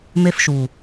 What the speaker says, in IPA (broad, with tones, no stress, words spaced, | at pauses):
me˧fʃu˨